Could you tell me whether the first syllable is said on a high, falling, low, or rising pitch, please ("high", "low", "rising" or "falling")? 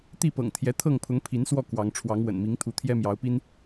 falling